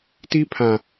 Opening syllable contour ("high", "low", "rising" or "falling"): high